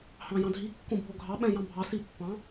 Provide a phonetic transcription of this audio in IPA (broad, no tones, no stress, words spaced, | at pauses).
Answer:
hɑ̃jɑ̃dʱi kːõbʱoɡʱɑ ɓɛ̃jɑ̃bʱɑ sipːɑ̃